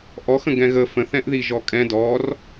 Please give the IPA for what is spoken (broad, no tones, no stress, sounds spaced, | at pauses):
ʔ ɔ x ə̃ ɡ ɛ̃ ɣ ə f ə̃ θ ɛ̃ ʔ ð i ʒ ɔ kʼ ɛ̃ d ɔ r